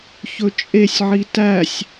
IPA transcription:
ç ɵ t͡ʃʼ e sʲ ʕ i t æ sʲ

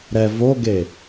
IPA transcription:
ɾ ɛ v o ɡ e

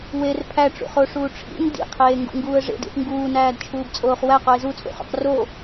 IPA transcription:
w e r pʰ æ ʈ͡ʂ ṵ χ o ʂ uː ʈ͡ʂʰ ḭ n d ḭ qʰ eː ŋ ɡ ṵ ŋ ɡ uː ə̯ ʐ ḛ d ḭ θ ŋ ɡ uː n æː d t͡ʃʰ uː b t͡sʼ oː χ w æ q o ɪ̯ z u t͡sʼ ṵ χ ṵ q r o

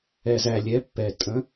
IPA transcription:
ɛ˨ z æ˨ lʲ ɛ˨˦ pː ɛ˨ tʼ ə̃˨˦

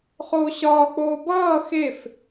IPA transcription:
χ oː ɕ ɒː k͡p oː b ʌː x e f

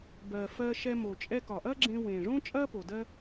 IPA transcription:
b ɜ˨ f ɜ˧ ʃ ɛ˧ m o˨ t͡ʃʼ ɛ˧ k ɒ˨ ʔ ɐ˦ ɡ͡ǁ ẽ˧ w ẽː˨ ʐ õː˦ t͡ʃʼ ɐː˦ p o˨ d ɜ˦

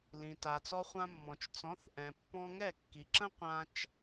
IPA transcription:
l ĩ˩ t a˩ t͡s ɔ˧ χʷ ã˧ mː ɔ̃˩ t͡ʃ t͡s ɔ̃˩˥ θ ʔ ɛ̃˩ pː ɔ̃˧ ŋ ɛ˥˩ kː i˩ ǁ ə̃˥ qʷ ã˧ t͡ʃ

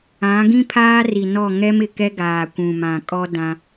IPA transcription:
ã˨˦ ɡ ĩ˦ pʰ aː˦ r i˨ n ɔ˦˨ ŋ ɛ˦ m ɪ˨ k ɛ˦ ɡ aː˨ kʷ ũ˨ m ã˨ kʼ ɔ˦ d ã˦

